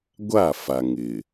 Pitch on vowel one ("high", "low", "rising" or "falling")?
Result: falling